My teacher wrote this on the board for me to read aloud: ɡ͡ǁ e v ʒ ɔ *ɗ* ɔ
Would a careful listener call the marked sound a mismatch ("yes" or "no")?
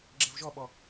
yes